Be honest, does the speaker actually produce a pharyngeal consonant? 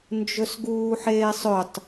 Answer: yes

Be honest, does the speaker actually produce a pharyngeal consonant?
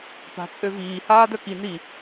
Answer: no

